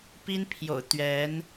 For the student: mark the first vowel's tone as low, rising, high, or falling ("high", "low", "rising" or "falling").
high